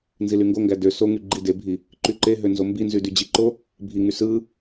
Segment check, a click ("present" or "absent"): present